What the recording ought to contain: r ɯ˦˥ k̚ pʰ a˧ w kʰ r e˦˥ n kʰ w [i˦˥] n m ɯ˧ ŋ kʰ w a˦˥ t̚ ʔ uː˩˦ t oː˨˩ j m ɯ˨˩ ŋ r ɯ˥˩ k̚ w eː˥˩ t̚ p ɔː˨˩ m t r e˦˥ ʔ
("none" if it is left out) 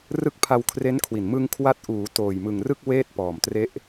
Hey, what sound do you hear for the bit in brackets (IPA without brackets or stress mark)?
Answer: i˨˩